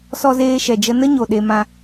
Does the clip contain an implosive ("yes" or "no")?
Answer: yes